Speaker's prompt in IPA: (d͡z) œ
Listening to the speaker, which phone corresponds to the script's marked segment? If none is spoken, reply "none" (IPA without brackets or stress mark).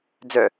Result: d͡z